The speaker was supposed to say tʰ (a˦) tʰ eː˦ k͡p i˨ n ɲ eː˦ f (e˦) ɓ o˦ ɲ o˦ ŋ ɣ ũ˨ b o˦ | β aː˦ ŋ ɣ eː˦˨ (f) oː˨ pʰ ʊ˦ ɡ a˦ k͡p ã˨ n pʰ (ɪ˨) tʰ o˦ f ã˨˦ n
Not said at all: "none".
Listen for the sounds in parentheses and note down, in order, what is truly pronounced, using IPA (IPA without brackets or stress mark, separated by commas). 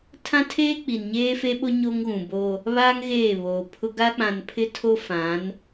ã˦, e˦, β, ɪ˦